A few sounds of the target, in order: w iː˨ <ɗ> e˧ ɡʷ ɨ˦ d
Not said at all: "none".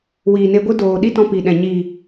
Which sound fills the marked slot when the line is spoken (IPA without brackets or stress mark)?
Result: n